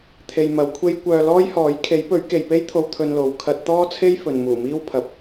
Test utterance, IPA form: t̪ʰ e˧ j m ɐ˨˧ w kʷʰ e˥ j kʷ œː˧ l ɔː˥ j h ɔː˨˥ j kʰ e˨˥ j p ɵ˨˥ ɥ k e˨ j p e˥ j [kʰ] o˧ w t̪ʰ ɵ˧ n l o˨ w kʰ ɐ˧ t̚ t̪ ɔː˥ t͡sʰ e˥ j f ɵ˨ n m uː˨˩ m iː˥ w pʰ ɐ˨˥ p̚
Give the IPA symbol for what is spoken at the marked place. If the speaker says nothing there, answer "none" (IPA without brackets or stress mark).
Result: t̪ʰ